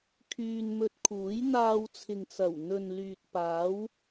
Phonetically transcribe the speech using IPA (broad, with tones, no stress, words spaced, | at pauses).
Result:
kʰyː˧nmɵ˧t̚kʰuː˨˥j n̪aː˧wt͡sʰɪ˨ŋt͡sɐ˨˩wn̪ɵ˨n lyː˨t̚paː˨˥w